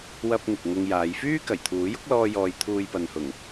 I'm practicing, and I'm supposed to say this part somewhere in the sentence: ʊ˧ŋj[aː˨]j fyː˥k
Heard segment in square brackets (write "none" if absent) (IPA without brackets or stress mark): aː˨˧